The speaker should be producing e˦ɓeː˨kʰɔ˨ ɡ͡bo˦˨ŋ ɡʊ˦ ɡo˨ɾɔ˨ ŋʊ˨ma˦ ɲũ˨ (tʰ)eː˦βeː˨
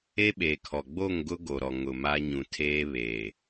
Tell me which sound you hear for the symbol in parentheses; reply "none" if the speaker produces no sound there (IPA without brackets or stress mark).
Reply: tʰ